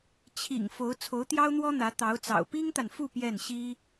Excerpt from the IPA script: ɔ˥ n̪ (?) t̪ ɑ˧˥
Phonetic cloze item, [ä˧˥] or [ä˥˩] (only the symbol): ä˧˥